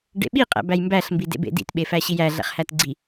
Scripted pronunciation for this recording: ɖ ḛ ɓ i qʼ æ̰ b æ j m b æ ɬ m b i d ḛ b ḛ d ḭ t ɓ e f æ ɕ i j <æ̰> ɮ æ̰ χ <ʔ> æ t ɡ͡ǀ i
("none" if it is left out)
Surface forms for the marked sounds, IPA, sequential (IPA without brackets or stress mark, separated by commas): æ, h